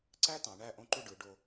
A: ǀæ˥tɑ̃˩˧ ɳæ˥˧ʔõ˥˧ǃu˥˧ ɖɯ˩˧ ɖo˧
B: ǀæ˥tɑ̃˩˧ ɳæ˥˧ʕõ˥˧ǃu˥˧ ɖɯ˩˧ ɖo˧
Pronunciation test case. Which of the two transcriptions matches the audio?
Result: A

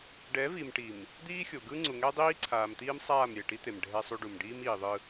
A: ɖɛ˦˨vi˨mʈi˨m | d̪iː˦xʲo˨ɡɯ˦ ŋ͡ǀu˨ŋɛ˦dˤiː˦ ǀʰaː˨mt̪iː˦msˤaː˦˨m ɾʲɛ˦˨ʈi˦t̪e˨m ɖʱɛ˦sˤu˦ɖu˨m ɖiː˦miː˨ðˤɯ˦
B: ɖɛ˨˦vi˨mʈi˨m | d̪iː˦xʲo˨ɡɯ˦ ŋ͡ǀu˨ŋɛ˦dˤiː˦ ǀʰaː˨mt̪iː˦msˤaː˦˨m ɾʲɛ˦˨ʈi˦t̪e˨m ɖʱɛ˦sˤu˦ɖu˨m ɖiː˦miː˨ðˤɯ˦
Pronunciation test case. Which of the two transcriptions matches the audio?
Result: B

